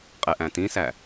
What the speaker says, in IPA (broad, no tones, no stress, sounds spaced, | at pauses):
qʼ e ʔ æ̃ t ĩ s æ